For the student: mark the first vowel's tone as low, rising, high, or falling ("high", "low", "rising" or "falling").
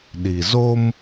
low